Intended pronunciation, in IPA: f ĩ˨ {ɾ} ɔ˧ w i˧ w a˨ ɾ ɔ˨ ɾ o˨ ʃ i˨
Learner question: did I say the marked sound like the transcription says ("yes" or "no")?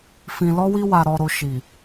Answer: no